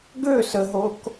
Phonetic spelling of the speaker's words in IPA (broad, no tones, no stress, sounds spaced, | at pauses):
ɡ ø s ə ɦ o k